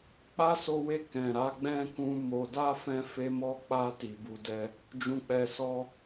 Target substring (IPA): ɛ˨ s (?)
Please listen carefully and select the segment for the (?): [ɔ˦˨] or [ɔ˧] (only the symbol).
ɔ˧